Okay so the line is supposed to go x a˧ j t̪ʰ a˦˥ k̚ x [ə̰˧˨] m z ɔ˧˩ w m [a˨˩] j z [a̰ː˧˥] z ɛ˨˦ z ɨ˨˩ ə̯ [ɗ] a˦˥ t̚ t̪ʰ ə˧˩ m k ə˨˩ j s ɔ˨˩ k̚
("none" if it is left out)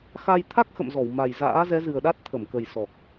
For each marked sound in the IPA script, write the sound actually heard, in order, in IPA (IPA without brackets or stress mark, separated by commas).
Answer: ə̰˧˨, a˨˩, a̰ː˧˥, ɗ